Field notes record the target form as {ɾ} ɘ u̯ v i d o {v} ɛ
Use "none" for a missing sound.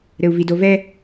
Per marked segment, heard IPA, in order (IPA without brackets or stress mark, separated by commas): ɾ, v